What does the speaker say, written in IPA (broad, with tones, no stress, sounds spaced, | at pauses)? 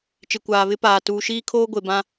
t͡ʃ ɪ˨ kʷ aː˨ β ɪ˦ p aː˨ t uː˨ ʃ iː˦ kʰ oː˦ ɡʷ e˨ b ã˦